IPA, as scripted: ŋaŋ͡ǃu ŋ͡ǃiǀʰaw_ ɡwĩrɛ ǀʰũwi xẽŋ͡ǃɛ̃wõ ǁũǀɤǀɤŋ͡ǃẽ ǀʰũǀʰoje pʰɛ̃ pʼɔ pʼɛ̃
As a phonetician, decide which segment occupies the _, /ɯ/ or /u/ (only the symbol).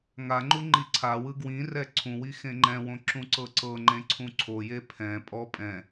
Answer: ɯ